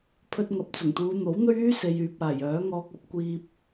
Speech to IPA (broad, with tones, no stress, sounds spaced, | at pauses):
pʰ ɵ˧ t̚ ŋ ɐ˨ p̚ t͡s ʊ˨˩ ŋ t̪ uː˨˧ n̪ o˨˥ w n̪ ɵ˥ ɥ yː˥ s e˨ j yː˨ p̚ aː˨˩ j œː˨˥ ŋ ɔː˧ k̚ ɐ˥ p̚ kʷ iː˧ p̚